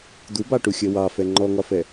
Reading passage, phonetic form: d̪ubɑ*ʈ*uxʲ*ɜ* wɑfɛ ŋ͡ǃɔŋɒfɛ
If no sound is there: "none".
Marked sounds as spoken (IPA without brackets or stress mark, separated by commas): ʈ, ɜ